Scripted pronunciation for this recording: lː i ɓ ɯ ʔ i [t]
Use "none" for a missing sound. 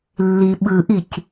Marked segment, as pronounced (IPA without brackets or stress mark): c